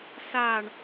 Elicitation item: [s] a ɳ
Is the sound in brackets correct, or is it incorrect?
correct